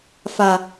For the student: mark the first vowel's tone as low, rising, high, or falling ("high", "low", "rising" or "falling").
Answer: low